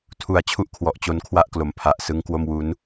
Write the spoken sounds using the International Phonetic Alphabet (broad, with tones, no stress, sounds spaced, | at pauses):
tʰ u˨˩ a̯ t͡ɕʰ u˥˩ ʔ kʰ w ɔ˨˩ ʔ t͡ɕ o˧ n kʰ w a˥˩ ʔ k l o˩˦ m pʰ a˨˩ ʔ s ɯ˦˥ ŋ k w o˥˩ m w u˦˥ n